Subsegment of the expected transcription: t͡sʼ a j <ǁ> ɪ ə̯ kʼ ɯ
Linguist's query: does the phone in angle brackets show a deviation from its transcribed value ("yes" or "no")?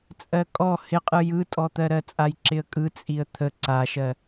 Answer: no